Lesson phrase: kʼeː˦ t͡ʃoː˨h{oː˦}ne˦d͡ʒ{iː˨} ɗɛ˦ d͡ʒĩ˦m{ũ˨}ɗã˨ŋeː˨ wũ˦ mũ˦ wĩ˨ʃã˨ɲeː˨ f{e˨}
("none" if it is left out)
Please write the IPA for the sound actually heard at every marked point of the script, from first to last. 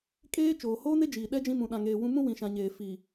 oː˦, iː˨, ũ˨, i˨

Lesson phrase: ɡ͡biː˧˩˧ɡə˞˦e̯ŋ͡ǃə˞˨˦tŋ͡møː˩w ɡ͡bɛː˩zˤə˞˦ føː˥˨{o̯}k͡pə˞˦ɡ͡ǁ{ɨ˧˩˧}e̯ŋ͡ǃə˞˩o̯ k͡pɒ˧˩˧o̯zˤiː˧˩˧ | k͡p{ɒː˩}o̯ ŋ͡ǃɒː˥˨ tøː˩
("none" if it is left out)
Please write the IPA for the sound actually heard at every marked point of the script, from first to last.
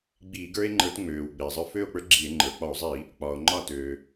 o̯, i˧˩˧, ɒː˩

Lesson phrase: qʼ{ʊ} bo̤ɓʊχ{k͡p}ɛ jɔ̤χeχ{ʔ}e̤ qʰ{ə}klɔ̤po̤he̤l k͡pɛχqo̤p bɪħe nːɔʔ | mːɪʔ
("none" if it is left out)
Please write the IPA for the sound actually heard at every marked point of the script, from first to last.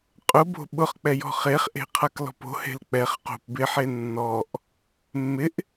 ʊ, k͡p, ʔ, a

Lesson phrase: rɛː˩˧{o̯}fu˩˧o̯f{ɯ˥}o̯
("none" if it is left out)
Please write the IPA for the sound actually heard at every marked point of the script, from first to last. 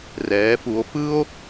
none, ɯ˥

